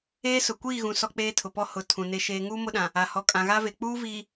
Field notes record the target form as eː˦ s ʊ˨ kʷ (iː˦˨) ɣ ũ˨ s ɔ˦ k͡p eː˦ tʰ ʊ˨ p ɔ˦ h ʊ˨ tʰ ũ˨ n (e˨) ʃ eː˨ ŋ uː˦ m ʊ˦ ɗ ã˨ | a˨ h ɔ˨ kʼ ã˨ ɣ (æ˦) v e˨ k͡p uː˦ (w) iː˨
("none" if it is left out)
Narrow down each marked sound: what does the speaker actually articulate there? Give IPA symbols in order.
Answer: iː˦˨, e˨, a˦, v

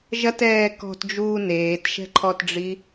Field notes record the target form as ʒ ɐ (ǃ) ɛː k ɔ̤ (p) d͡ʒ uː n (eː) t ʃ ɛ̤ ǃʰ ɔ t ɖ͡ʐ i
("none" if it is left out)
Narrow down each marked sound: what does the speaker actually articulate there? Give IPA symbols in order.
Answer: t, t, eː

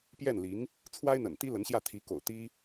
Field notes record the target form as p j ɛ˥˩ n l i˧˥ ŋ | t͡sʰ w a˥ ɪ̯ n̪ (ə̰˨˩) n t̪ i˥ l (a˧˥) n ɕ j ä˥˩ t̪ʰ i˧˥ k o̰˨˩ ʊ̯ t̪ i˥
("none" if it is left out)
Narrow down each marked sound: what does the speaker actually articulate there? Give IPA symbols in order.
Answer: ə̰˨˩, ə˧˥

